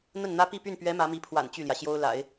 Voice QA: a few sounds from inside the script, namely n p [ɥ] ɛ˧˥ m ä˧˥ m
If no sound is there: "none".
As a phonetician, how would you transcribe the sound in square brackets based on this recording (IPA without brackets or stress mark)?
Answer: ɥ